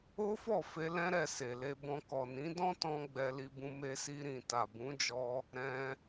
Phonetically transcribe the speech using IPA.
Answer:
o˦fɔ˦˨fe˧ lɛ̃˦ɾɛ˦˨ se˨le˧bɔ̃˧ kɔ˨nĩ˨˦dɔ̃˦tɔ̃˧ ɡ͡bɛ˧li˧bũ˧ me˧si˧ɾĩ˨ ta˨bũ˨˦d͡ʒɔ˧ | ɾɛ̃˧

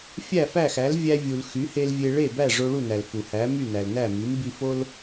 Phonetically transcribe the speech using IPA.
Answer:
fʲæ˥˩fæ˥˩xæ˩˥l vʲæ˧vʲu˩l xy˩˥he˧l vʲe˧ ɭe˥˩bæ˥˩ ʐo˧ɭu˥˩næ˩l fu˩hæ˩˥ my˥˩næ˩lnæ˥˩ mi˩˥m bi˧fo˥l

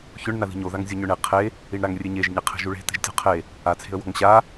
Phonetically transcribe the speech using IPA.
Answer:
çʊɳ naði̤ɲo ðaŋzʲoɲʊɳe qʰe | iɳɾaŋrʲeɲeʒ ɲeqʰe̤ʒuɭe̤ te̤ʒtʲɔ̤qʰe | a t͡sʰe̤ə̯wɔ̤ŋɕa

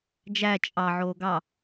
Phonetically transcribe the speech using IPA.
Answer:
d͡ʒæ t͡ʃʼɑ ʕoːɡɑ

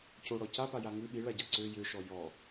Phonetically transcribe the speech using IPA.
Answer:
coɽɔ capaja ŋɨ ɓiɭaɟa ǀø jøʃɔ jɔ

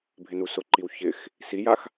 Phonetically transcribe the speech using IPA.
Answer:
bʱɪnusʊǃiw çɪx | sijax

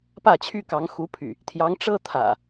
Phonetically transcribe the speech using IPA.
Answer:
pä˥˨t͡ɕʰy˥˨kɑ˨˦ŋ xu˨˦pʰy̰˨˩ | t̪ʰjɑ˨˦ŋʈ͡ʂɤ˦ t̪ʰä̰˨˩

